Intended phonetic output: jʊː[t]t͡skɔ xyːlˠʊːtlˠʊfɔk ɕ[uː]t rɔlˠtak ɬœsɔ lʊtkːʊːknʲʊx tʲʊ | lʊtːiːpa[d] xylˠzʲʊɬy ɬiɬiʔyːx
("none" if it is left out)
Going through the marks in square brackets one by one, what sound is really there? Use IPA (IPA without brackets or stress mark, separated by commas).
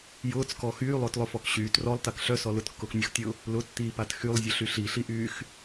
none, yː, t